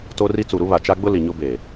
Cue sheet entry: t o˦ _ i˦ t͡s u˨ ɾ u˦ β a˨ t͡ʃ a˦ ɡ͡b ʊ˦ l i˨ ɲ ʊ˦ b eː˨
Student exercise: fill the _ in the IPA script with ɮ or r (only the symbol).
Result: r